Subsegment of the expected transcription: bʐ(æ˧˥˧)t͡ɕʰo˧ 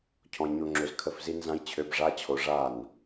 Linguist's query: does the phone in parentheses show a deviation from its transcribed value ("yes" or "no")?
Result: yes